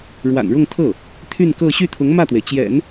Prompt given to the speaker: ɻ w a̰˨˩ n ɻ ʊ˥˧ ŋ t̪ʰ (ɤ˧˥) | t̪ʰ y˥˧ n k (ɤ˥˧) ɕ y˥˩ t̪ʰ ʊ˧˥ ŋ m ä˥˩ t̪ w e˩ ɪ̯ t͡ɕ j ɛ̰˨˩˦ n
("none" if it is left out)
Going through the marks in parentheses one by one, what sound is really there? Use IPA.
ɤ˥˩, ɤ˥˧

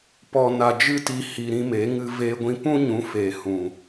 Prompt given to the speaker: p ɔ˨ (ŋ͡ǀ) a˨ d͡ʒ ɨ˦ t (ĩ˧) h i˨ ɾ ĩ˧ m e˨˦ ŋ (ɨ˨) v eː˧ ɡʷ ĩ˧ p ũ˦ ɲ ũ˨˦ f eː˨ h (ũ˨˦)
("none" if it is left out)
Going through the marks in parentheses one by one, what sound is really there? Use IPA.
n, i˧, ɨ˧, ũ˨

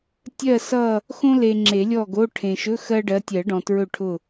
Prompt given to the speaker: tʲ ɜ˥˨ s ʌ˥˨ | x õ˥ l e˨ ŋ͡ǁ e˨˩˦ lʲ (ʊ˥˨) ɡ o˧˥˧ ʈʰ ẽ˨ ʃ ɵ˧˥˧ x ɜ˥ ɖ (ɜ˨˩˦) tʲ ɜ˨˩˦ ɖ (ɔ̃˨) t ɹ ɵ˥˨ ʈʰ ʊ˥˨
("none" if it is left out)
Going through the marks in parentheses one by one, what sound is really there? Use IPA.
ɔ˥˨, ɜ˨˦, ɔ̃˨

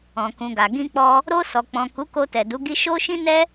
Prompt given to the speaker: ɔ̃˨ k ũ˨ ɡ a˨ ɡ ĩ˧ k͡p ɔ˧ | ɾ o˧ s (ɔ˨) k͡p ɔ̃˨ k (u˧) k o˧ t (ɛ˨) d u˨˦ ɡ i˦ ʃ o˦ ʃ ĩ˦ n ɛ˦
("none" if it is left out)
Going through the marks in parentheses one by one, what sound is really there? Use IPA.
ɔ˨, u˨˦, ɛ˨

